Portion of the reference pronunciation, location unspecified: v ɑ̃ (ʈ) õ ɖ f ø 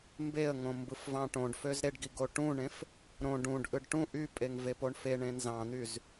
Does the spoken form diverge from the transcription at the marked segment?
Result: no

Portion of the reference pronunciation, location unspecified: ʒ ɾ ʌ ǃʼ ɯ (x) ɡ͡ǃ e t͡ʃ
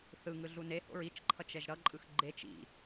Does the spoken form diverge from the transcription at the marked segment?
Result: no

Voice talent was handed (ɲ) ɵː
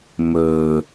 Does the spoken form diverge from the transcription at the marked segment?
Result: yes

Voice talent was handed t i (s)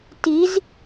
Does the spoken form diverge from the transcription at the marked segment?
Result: yes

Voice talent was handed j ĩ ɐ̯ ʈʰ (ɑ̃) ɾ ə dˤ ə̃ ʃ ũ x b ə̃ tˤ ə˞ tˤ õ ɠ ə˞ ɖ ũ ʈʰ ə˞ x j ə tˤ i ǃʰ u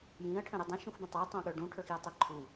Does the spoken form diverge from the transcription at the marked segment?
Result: yes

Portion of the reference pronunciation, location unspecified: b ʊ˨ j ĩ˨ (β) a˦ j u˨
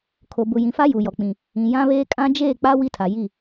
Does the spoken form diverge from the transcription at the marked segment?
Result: yes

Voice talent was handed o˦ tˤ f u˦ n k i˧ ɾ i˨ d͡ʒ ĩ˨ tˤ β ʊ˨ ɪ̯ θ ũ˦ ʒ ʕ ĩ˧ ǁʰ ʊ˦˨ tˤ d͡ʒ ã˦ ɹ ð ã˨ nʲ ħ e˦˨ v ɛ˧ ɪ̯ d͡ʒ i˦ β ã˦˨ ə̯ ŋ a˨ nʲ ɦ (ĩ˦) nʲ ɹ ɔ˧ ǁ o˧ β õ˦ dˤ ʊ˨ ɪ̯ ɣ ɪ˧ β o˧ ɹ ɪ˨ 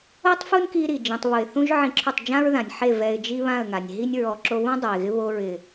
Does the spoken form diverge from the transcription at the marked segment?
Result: yes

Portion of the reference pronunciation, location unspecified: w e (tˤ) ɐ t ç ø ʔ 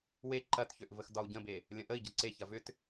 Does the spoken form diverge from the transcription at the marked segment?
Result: yes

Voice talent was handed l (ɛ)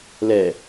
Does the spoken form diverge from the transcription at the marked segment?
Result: no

